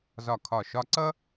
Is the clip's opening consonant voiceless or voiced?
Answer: voiced